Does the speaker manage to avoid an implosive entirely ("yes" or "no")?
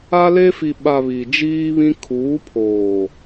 no